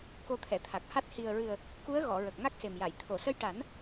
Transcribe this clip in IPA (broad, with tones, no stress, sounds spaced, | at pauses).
k o˧ t̪ʰ ɛ˨˩˨ t̪ʰ a˨˩ k̚ h a˦˥ t̚ h i˨˩ ə̯ ɹ ɨ˨˩ ə̯ | k u˧˥ ə̯ ɣ ɔ˨˩˨ ɹ ə˨˩ k̚ ŋ a˦˥ k̚ s e˨˩ m j a˨˩˨ j t̪ʰ o˨˩˨ s ə˧ j ʈ a˨˩˦ n